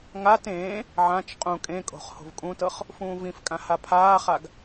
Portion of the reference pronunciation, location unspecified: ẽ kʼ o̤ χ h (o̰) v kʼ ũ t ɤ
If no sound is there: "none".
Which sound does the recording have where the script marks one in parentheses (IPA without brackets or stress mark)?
o̤